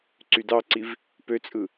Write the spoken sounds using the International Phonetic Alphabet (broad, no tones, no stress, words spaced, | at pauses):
ǀydɑǀiv | pøt͡sʼɯ